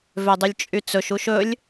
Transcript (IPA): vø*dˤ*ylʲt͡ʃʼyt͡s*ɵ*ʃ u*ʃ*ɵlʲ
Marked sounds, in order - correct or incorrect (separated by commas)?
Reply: correct, correct, correct